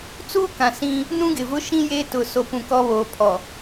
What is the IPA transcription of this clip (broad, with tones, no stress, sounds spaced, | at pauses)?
t͡s uː˦ k ã˨ s ĩ˦ | n ũ˦ ɡ ɪ˨ v ʊ˦ ʃ ĩ˦ j eː˦ t ʊ˨ s o˨ p ũ˨ k ɔ˦ β oː˨ pʰ ɔ˨